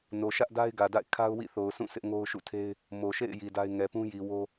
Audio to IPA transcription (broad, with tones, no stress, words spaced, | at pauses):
no˨ʃä˦ʔda˦ɪ̯ ɡä˨da̰˦˨ɪ̯ kʰa˦ʊ̯wḭ˦˨θo˨ʊ̯sʰũ˦˨ sʰɪ˦ʔŋo˦ʊ̯ʃṵ˦˨tʰe˦ɪ̯ | mo˨ʃḛ˦˨ɪ̯ ji˨da˦ɪ̯ ŋɛ˨pũ˦ji˨ wo˦